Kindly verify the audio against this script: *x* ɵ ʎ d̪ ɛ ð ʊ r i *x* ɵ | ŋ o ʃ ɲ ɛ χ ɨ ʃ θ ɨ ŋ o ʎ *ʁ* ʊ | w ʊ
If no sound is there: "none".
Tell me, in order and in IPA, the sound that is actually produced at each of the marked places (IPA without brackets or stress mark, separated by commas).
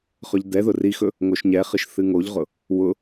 χ, x, ʁ